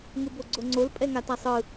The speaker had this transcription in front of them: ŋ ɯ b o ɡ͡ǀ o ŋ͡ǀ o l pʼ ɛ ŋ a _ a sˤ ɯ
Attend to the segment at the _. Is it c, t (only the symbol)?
t